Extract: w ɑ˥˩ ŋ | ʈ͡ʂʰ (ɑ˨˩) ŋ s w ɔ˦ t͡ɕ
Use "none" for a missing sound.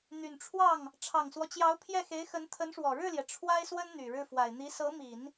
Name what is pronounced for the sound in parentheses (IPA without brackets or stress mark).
ɑ˨˩